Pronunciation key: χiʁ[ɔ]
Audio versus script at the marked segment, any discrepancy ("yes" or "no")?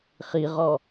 no